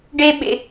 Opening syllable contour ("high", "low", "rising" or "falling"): high